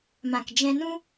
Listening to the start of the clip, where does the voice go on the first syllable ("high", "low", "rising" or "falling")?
low